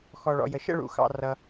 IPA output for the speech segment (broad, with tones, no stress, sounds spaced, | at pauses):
x ɔ˨ ɭ ɔ̰˨ j ə˨ ʃ ə̰˥˧ ɭ ṵ˨ x ɑ̰˨ r ʌ˨